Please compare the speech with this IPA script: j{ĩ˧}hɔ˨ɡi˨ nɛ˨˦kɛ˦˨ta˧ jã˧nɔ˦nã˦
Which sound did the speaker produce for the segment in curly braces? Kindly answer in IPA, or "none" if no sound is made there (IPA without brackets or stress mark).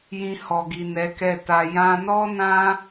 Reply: ĩ˧